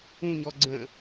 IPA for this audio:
ũɲɔ ɡ͡ǀə̃

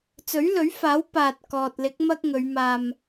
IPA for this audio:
t͡sɵ˨˥ɥlɵ˨˥ɥfaː˨˥w paː˨t̚ kɔː˨t̚lɪ˨˥k̚ mɐ˧k̚ ŋɵ˨˧ɥ maː˨m

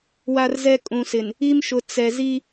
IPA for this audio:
wa˦rzɛ˦ kʼũ˨sɪ˨n | i˦mʃʊ˨ t͡sɛ˨ zi˦

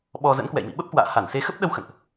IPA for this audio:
ɓɔ˧ zə̰˧˥nkwɛ̰˧˨jmḭ˧˨ ɓə˦˥p̚kwa̰ː˧˨ha˧˩n se˨˦xə˦˥p̚ɗə˧w xə̰˧˨nʔ

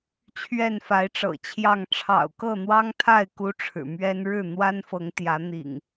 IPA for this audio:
t͡ɕʰɥɛ˥˨nfa˨˦ɪ̯ʈ͡ʂɤ̰˨˩t͡ɕʰjɑ˥˨ŋ ʈ͡ʂʰɑ̰˨˩ʊ̯kɤ˥˨n̪wɑ˦ŋt̪ʰa˥˨ɪ̯ ku˦ʈ͡ʂʰɻ̩˨˩ mɥɛ˦n ɻɻ̩˥˨n̪wa˦nfɤ˨˦ŋ t̪jä˨˦ n̪ḭ˨˩ŋ

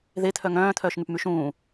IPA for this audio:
ðet̪ʰœ ŋœ̃ːt̪ʰœːʃŋyp myʃũː

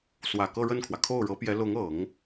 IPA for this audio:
swä˨˩kɤ˥˧ɻə˥˩nkʰwä˩ kʰo˥˩ʊ̯ɻɤ˧˥pjɛ˧˥ lʊ˧˥ŋɤ˨˩˦ŋ

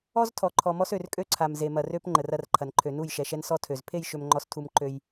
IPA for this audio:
ɔ˦z tʰɔ˨ǃʰɔ˨mɔ˦sø˨r kʼø˦ǀʰa˨m ze˨mɐ˨rø˦p ŋ͡ǃə˨rɐ˦rǃʰɐ˨nǃʰø˨ nu˦˨jʃɛ˨ʃɛ˦n sɔ˦tʰø˨z pʰe˦˨jʃø˨mŋ͡ǃɔ˨stʰu˨m ǃø˦j

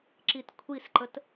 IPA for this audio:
ǁitkʷʰisǃət

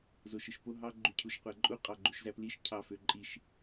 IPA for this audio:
zoʃɯʃpo ɦɑ ɡ͡ǃycʰuʃqʷæǃʼu qʼɑɡ͡ǃuʃzæpliʃ cʰɑføǃʼiʃ

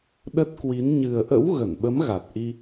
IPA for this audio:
ɗə˦˥t̚kwi˨˦n ɲɨ˨˩ə̯ʔə̰˧˥w ɣə˧˩nɓə˨˦m ɣa˨˩t̚ʔi˧

